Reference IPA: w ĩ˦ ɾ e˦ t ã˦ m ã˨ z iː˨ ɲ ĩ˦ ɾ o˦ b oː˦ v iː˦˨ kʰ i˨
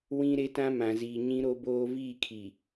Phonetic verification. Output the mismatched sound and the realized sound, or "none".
none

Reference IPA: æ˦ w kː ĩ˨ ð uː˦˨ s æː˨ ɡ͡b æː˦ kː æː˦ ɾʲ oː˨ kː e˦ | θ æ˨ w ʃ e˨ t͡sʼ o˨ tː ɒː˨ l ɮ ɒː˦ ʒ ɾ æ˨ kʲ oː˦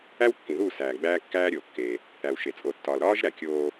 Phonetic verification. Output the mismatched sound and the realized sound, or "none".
ɮ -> ɾ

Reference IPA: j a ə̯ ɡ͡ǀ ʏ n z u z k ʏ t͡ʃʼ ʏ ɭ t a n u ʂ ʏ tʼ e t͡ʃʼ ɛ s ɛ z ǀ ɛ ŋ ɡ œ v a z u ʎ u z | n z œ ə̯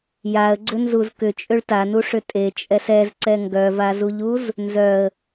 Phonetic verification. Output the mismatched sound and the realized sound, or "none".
none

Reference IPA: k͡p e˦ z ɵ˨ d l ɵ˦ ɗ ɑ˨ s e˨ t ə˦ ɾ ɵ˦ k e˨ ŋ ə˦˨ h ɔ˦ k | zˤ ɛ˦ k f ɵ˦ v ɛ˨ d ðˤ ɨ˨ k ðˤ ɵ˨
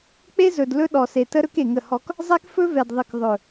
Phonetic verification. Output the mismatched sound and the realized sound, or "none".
ɑ˨ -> ɔ˨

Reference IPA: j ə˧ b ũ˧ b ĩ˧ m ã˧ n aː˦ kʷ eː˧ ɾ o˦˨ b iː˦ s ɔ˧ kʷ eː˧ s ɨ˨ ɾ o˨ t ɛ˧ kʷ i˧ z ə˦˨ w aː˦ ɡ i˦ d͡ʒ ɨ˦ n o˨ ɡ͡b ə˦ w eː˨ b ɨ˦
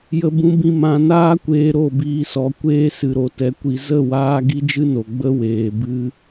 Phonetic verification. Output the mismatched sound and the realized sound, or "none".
none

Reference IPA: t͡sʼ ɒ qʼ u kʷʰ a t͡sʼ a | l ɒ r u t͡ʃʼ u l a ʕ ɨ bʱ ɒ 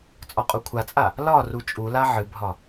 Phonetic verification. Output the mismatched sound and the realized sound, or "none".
none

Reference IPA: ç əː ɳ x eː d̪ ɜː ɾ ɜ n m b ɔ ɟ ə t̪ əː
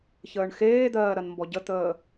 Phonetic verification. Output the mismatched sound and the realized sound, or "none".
none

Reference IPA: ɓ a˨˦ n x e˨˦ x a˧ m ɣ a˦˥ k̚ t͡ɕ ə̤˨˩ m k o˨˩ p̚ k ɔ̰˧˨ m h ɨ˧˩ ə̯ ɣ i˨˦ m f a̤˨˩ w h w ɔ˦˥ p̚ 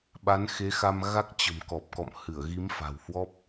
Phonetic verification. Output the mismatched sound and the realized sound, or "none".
o˨˩ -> ɔ˨˩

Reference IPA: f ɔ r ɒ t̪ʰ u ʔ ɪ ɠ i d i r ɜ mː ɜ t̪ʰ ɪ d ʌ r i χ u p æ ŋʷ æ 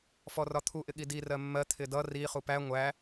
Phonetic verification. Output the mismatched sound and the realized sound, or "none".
none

